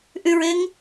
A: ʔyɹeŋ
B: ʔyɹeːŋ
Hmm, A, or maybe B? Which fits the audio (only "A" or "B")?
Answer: A